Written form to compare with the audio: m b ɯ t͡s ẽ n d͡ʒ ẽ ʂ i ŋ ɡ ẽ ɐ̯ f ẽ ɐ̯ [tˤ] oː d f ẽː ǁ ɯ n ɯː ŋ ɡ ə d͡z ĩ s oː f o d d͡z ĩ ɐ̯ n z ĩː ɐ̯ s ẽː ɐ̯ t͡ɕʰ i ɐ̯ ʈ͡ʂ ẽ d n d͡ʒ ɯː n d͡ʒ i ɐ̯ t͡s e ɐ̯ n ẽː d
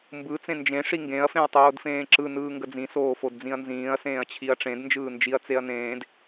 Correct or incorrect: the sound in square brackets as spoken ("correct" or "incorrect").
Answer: correct